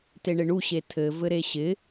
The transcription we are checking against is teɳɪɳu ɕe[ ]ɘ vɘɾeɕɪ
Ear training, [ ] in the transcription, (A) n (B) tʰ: B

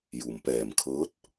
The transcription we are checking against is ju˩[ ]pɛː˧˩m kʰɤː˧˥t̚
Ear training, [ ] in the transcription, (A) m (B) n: A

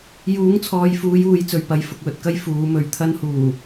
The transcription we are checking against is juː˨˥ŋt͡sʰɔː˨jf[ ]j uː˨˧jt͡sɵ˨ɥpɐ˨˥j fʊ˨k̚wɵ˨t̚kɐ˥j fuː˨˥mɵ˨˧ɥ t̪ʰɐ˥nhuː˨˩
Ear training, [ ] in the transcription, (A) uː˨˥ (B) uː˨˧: B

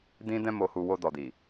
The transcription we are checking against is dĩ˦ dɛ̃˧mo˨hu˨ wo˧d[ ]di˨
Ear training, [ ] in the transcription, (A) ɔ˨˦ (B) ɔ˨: B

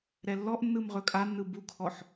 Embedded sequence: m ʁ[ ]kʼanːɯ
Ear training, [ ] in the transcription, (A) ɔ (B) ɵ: B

